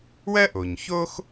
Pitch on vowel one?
high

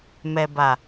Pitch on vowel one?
low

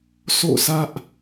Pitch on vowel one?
falling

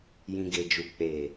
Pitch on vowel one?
low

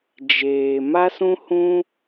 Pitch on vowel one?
low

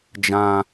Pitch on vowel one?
high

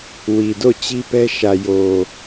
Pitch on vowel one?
low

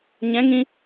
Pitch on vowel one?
rising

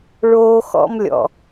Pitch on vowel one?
high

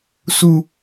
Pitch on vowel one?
low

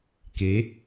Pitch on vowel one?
rising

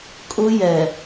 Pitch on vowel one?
high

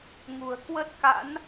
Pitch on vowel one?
low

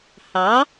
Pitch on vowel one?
rising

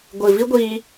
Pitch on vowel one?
low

